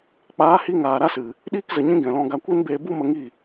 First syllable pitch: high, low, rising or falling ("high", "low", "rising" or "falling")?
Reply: rising